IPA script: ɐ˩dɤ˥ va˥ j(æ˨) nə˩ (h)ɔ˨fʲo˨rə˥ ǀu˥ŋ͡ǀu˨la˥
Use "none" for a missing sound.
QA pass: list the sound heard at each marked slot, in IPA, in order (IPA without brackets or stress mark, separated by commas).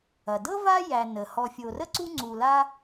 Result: æ˨, h